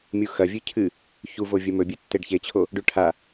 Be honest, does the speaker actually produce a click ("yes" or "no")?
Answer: no